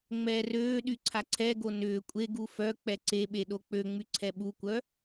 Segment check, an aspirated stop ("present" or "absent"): present